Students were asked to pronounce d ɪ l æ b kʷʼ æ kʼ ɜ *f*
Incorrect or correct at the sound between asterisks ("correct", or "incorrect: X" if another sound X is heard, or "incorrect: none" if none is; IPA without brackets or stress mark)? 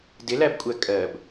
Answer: incorrect: b